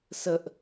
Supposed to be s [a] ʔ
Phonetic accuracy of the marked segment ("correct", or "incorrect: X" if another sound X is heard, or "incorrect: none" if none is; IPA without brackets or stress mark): incorrect: ə